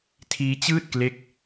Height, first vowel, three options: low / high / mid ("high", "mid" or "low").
high